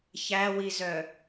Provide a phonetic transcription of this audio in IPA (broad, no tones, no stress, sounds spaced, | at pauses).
ç æ w i z œ